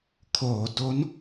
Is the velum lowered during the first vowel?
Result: no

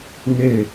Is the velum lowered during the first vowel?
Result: no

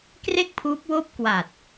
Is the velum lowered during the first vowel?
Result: no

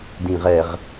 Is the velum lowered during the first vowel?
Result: yes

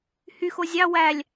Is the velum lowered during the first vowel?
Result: no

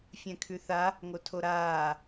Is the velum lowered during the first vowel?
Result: yes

